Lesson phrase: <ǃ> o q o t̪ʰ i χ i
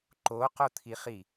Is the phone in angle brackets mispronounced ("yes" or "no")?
no